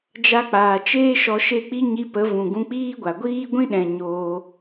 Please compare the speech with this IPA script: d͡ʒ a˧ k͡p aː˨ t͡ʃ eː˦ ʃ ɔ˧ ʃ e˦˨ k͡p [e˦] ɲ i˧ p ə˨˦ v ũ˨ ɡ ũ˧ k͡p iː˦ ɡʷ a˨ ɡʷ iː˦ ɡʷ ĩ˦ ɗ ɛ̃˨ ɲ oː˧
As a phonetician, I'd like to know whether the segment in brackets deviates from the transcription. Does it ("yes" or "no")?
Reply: yes